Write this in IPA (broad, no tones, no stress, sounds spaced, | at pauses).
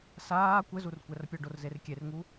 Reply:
s aː kʷ ɘ z u r kʷ ɛ r pʲ ɔ ɖ o r z e r kʲ e r ŋ u